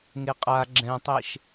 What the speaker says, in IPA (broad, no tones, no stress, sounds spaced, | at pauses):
ŋ e qʼ a ɡ͡ǁ ɛ̃ tˤ e ʃ